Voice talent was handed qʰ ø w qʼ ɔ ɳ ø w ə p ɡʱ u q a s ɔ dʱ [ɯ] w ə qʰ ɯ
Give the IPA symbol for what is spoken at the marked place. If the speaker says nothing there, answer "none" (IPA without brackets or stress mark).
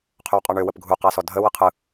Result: ə